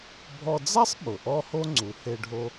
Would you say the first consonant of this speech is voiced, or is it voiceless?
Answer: voiced